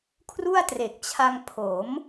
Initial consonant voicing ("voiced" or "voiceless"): voiceless